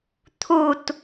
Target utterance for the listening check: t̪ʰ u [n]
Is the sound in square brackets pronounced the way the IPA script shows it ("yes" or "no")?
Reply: no